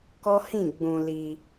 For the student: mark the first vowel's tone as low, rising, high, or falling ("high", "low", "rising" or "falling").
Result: high